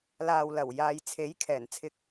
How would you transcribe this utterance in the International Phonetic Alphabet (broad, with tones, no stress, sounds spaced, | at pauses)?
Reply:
l aː˨ w l ɐ˨˩ w j aː˨ j t͡sʰ e˨˥ j kʰ ɛː˨˩ n t͡sʰ ɪ˧ k̚